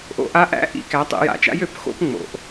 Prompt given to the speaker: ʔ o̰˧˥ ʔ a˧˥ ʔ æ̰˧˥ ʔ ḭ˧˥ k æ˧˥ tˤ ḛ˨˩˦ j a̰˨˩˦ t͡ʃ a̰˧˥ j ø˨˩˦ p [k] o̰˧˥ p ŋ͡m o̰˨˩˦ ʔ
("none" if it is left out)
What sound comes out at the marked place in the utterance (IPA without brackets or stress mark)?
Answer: x